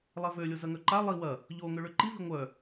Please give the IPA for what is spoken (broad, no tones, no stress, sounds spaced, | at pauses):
lˠ ɛ v ø lʲ o z ɐ ŋ œ ǃ a lˠ i w ɐ | ʎ o ŋ ø ɭ ø ǃ i v i ŋʷ œ